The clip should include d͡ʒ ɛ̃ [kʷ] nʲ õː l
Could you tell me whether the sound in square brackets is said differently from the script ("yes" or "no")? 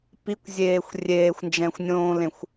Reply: yes